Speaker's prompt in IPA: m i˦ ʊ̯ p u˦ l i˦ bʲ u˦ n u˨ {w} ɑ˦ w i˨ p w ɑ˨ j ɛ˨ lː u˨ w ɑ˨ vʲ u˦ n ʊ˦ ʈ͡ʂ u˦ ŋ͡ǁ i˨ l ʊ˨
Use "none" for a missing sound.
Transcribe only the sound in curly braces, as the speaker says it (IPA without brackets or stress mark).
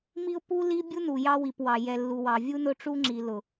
j